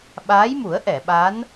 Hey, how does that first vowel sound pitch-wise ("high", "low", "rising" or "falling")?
rising